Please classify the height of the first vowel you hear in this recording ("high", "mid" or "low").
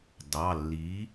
low